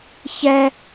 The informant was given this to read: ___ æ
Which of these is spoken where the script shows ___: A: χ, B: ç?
B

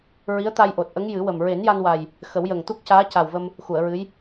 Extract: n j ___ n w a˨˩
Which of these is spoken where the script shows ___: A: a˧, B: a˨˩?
A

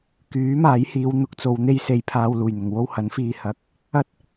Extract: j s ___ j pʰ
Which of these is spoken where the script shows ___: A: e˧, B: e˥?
A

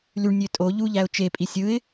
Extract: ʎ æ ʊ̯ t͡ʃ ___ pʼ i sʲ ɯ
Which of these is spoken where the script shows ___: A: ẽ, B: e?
B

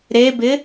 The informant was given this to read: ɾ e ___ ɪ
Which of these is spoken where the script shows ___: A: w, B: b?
B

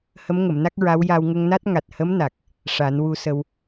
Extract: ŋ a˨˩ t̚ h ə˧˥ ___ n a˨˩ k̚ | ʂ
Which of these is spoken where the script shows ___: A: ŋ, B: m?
B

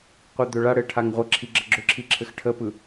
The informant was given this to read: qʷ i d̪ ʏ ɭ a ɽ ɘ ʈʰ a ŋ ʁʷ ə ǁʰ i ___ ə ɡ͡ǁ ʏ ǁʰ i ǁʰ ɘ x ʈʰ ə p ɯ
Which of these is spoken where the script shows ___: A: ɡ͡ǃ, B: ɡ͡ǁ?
B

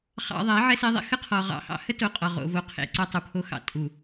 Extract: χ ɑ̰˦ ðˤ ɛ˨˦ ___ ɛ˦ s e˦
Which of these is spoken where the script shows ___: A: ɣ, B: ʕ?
B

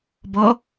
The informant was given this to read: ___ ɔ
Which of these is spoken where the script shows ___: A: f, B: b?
B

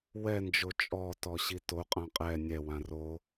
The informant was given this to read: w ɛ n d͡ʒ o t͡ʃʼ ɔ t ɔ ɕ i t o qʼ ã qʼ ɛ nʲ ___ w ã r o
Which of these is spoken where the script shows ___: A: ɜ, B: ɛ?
B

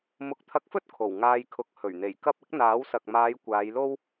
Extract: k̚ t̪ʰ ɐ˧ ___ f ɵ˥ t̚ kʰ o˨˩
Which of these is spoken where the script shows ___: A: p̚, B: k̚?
B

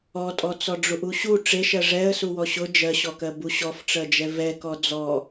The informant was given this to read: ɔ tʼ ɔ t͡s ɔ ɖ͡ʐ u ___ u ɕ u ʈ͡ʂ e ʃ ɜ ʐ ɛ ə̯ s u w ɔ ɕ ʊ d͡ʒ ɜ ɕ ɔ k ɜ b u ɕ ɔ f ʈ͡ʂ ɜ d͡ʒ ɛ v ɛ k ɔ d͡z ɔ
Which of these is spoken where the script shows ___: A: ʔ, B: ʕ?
A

